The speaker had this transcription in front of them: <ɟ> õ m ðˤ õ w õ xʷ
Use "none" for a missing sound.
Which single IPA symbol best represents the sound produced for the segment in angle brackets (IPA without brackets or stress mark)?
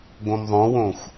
ɡ